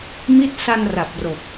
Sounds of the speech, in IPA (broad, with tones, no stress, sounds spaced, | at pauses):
m i˥˩ t̚ s a˧ n r a˨˩ p̚ r o˨˩ k̚